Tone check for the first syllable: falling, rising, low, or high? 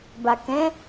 low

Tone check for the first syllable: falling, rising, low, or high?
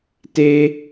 high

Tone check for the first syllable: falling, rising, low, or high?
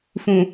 low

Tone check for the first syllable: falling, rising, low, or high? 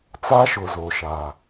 high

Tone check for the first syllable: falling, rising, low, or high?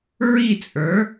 falling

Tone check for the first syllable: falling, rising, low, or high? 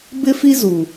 high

